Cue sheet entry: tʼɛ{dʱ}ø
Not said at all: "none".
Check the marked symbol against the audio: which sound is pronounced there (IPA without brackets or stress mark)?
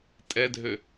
dʱ